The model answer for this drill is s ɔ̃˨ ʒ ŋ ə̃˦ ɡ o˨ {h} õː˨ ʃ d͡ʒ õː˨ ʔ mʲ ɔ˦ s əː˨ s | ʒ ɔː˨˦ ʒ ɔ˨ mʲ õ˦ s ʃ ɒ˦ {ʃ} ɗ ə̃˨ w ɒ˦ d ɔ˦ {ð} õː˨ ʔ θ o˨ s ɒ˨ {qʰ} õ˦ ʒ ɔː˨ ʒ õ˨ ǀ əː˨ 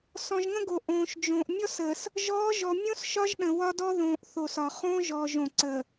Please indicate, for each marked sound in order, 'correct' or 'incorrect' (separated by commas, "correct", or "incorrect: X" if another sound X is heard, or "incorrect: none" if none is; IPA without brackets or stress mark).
incorrect: ʔ, incorrect: ʒ, correct, incorrect: χ